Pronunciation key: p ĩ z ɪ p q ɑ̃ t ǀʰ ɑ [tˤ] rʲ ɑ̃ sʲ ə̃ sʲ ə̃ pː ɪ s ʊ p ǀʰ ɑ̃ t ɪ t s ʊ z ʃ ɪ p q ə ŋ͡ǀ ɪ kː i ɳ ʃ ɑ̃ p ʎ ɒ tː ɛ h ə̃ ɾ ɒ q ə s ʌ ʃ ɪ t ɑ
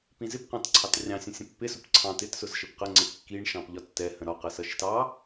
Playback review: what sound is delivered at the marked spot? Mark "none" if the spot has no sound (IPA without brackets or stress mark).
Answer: t